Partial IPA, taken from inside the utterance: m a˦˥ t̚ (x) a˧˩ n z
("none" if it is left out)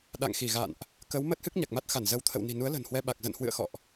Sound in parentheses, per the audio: x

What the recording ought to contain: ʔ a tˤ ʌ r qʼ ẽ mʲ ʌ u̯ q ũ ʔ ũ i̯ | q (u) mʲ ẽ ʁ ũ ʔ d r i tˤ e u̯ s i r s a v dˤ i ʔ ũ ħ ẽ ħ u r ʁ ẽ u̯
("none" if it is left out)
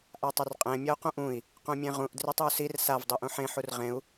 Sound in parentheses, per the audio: ũ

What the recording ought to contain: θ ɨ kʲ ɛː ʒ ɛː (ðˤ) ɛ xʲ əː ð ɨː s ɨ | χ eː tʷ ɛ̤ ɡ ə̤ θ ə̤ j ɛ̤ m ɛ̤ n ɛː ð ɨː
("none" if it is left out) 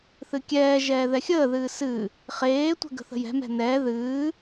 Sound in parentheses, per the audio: ð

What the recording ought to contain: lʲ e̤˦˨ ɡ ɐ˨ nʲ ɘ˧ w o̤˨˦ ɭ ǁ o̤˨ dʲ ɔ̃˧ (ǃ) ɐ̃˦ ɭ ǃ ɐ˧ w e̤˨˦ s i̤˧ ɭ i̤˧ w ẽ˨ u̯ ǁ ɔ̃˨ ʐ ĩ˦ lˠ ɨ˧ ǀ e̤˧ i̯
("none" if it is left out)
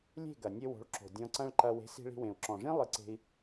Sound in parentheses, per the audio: ǀ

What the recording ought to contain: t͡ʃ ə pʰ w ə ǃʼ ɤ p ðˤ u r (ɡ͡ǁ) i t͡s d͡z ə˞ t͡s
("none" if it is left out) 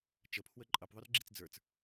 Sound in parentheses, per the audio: ɡ͡ǁ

